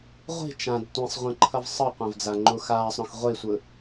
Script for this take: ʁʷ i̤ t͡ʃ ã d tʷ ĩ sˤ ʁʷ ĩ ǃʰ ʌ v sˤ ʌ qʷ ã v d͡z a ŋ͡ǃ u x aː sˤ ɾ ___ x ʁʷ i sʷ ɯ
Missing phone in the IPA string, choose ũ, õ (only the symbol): õ